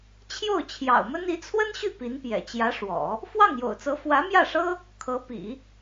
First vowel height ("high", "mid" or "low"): mid